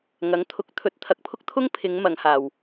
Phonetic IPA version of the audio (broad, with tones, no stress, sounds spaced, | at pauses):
ŋ ɐ˨˥ ŋ t̪ʰ ʊ˨˥ k̚ t̪ʰ ɵ˨˥ t̚ t̪ʰ ɐ˨ k̚ pʰ ʊ˥ k̚ t̪ʰ ʊ˥ ŋ pʰ ɪ˨˧ ŋ m ɐ˨˧ ŋ h aː˨ w